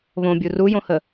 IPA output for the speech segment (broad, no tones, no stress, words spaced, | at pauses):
βõbʲu rujõhə